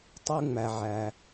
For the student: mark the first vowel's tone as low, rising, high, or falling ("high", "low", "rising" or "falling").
high